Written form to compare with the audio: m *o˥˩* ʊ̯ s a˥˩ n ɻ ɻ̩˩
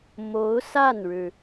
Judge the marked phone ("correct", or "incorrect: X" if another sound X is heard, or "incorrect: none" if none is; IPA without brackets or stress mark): incorrect: o˧˥